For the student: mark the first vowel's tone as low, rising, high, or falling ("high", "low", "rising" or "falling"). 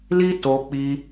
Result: high